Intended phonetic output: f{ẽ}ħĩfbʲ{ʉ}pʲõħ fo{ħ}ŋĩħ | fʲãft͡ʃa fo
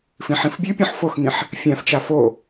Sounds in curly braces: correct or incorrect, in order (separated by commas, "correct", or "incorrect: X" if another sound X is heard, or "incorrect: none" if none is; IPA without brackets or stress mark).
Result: incorrect: ĩ, correct, incorrect: x